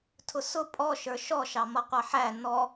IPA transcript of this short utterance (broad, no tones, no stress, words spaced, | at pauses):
tʰʊsʊ pʼɔ ʃə˞ʃɔ ʃɑmʌqʷɑħæ nɔ